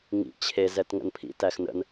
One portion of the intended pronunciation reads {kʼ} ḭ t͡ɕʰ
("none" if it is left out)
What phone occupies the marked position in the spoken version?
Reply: ŋ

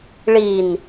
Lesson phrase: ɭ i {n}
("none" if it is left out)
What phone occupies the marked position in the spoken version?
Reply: n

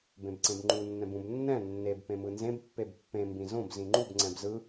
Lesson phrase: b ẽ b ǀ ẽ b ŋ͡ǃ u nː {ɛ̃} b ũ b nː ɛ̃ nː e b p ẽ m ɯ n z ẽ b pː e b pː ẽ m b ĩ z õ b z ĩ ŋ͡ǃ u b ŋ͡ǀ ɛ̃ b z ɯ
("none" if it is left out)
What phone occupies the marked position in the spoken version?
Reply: ɛ̃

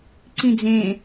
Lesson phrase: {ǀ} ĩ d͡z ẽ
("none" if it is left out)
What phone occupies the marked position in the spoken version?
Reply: ǀ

